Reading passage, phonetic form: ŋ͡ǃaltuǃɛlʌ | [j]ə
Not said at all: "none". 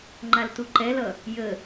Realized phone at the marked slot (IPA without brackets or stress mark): j